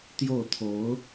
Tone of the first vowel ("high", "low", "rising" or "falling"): falling